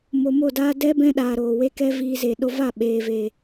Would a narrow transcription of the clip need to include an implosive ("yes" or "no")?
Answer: yes